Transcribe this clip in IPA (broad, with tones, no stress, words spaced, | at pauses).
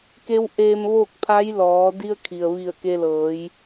ke˧˥wʔeː˧mʋoː˥˨k̚ pʰa˧˥jlɔː˩˧ di˧ə̯ kʰi˩ə̯ʋi˧˩ə̯ ke˧lɤː˩˧j